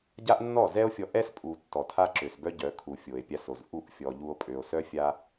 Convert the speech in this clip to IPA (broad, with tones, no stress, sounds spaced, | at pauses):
ɟ a˦ ʔ nː ɔ˦˨ z ɛ˦ o̯ fʲ ɔ˧ ʔ ɛ˦ s pʼ u˨ tː ɔ˨ tʰ a˦ ǁ ø˨ s b œ˦ ɟ œ˨˦ kʰ u˨ fʲ o˨ e̯ pʲ a˧ s o˨ z ʔ u˦˨ ʔ fʲ ɔ˧ ʎ u˦ o̯ pʼ ø˨ o̯ s œ˦ fʲ a˦